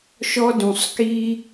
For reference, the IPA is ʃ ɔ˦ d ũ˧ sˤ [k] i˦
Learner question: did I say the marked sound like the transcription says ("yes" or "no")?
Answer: yes